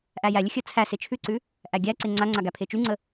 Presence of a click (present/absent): present